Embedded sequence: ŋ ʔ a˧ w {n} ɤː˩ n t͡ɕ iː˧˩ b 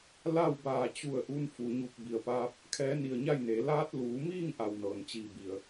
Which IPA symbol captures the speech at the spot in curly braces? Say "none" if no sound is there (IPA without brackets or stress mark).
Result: n